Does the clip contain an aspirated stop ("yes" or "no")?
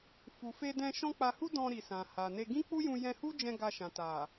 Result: no